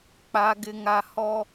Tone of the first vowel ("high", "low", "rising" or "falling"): high